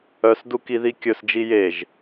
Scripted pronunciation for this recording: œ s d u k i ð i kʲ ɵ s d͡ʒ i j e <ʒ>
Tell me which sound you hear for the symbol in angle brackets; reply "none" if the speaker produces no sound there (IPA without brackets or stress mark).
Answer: ʒ